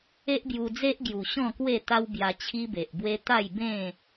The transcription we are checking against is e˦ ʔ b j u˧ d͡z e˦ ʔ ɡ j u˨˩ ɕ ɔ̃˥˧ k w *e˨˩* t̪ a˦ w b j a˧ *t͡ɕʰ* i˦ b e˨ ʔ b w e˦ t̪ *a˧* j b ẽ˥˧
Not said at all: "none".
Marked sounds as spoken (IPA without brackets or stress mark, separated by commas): e˥˧, t͡ɕʰ, a˥˧